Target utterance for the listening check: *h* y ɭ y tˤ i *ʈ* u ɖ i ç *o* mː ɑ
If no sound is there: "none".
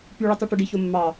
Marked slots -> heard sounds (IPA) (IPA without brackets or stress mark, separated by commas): p, ʈ, o